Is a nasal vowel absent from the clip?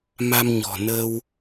yes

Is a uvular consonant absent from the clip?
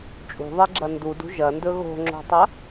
yes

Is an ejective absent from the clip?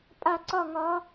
no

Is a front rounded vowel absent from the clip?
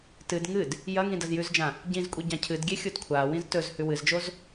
yes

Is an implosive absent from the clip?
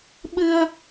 no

